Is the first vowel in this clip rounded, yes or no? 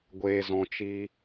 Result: no